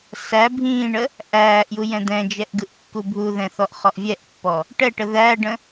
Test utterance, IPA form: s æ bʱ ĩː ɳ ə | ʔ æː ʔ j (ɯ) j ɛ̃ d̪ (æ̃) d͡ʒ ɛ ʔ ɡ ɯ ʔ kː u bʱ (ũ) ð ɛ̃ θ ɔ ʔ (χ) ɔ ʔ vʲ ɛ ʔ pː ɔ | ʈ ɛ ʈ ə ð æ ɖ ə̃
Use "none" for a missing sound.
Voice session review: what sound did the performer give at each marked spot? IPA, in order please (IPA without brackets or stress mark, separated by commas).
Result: u, ɛ̃, u, χ